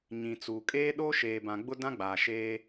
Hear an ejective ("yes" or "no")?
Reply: yes